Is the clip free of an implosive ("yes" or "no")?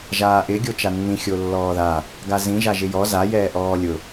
yes